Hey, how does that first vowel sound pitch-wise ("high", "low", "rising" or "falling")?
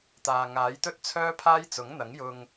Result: low